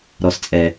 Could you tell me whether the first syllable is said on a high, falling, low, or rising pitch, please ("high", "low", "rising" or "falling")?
low